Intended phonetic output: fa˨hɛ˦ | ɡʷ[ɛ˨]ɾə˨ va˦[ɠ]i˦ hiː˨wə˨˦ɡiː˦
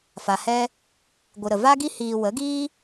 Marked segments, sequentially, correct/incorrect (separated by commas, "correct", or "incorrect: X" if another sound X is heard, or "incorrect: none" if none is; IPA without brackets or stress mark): incorrect: ɨ˨, incorrect: ɡ